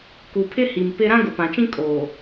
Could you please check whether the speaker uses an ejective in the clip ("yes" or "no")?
yes